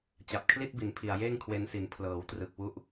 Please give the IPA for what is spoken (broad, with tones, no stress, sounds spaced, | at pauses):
t͡ɕ a˨˩ p̚ kʰ l i˥˩ t̚ b i˩˦ n pʰ i˨˩ a̯ j eː˥˩ ŋ kʰ w e˧ n s i˩˦ n pʰ l ɤː˩˦ w t r ɯ˨˩ k̚ w u˦˥ ʔ